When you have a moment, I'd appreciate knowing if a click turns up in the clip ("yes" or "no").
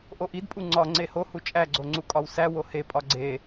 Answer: yes